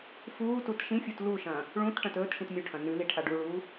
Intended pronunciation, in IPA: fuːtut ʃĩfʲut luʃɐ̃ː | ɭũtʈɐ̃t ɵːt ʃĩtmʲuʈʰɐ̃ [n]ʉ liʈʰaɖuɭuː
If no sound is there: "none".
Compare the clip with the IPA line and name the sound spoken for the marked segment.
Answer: n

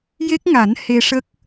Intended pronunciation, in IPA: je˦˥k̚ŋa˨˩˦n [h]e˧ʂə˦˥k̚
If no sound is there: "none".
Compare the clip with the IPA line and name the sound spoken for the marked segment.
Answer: h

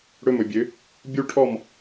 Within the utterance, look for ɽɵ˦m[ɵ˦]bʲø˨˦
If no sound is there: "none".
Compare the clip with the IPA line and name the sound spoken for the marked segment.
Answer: ɵ˨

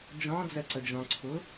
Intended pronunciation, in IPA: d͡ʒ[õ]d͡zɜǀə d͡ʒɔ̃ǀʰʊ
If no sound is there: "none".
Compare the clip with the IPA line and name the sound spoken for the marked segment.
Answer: ɔ̃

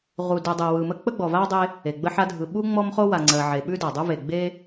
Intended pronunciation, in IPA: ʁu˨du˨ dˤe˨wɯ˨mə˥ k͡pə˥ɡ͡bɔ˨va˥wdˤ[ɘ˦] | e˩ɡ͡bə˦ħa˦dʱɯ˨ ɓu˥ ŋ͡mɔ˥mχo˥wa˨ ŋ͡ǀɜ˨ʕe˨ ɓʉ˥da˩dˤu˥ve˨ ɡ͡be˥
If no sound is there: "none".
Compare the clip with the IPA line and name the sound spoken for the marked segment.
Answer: e˦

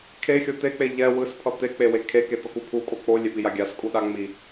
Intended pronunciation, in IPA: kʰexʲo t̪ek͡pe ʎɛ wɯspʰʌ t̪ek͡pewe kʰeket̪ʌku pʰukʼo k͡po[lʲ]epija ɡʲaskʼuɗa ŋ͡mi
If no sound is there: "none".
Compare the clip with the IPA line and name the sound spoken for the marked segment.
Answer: lʲ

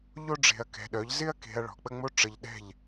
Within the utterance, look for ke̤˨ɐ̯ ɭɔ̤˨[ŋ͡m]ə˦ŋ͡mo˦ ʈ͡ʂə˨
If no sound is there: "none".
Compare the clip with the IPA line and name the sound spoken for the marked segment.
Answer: k͡p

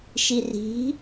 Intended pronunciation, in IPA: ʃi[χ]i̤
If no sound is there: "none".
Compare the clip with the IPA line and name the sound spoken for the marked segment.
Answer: r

